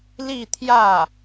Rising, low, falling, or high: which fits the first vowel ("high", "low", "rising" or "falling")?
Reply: falling